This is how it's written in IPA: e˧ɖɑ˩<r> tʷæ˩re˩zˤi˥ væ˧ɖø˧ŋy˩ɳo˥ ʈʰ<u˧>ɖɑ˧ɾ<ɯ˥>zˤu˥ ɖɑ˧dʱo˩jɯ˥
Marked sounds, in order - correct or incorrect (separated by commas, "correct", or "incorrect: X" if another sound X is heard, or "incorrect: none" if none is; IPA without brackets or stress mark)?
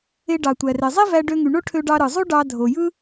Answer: incorrect: none, incorrect: ø˧, incorrect: ɯ˩